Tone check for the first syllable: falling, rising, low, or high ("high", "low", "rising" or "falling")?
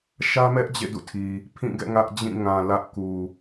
high